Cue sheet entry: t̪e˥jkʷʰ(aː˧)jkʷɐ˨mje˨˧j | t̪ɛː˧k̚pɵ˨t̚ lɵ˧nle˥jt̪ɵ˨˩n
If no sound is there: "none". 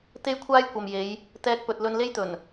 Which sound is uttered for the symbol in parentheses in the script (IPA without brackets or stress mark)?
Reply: aː˥